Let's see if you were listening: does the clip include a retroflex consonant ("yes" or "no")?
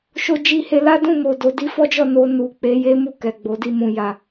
no